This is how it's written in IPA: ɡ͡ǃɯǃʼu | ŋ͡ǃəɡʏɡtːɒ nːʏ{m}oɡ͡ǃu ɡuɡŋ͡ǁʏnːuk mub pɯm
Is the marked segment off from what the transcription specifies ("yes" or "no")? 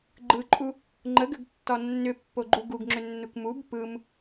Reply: yes